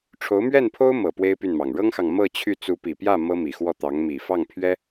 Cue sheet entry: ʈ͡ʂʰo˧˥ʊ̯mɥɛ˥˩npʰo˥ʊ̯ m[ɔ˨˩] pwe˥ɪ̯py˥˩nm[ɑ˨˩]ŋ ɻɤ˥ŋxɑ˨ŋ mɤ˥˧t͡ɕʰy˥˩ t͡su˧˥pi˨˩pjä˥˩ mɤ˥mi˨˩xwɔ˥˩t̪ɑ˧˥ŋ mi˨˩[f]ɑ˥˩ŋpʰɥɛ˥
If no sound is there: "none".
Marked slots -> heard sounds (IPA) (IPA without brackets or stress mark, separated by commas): ɤ˨˩, ɑ˨˩, f